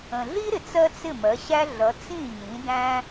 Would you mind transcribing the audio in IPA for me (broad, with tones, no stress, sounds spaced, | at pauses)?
ə̃˩ ɮ i˥ ɾ ɪ˩ t͡s ɜ˥ t͡s ɪ˥˩ m ɜ˩˥ ɕ æ˥ ɮ ʌ˩˥ t͡s ĩ˥˩ ɲ ĩ˩˥ d æ̃˥